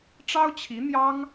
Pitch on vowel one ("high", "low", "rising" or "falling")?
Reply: high